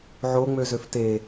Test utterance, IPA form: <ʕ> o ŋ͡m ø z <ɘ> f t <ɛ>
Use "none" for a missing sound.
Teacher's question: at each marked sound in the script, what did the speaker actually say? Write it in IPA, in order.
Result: ʕ, ø, e

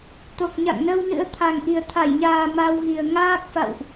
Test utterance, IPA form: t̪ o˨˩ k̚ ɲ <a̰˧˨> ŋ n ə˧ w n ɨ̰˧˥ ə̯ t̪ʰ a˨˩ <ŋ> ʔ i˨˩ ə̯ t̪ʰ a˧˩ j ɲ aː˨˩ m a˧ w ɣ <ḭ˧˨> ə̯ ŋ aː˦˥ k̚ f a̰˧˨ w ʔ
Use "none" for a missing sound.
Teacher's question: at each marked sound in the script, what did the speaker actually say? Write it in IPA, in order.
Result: a̰˧˨, ŋ, i˨˩

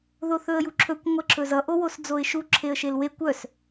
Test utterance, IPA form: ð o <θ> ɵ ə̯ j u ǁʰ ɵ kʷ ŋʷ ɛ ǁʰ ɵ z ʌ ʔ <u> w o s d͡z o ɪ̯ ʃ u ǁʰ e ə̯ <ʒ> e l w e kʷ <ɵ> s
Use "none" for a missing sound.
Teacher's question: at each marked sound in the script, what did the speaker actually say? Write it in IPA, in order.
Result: θ, o, ʃ, œ

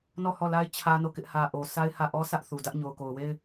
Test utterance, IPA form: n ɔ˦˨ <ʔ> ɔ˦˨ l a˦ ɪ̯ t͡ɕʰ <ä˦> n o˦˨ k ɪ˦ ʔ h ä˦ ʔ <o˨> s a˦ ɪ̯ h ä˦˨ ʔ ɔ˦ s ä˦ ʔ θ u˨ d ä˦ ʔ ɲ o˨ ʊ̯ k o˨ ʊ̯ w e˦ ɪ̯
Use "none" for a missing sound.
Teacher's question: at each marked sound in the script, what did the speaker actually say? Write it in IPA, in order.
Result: h, ä˦, o˨

